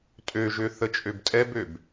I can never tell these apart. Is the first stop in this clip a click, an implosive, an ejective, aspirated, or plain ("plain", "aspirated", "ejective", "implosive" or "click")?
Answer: ejective